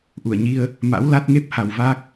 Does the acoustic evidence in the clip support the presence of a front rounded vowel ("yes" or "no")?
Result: no